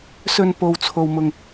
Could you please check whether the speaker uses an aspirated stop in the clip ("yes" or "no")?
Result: yes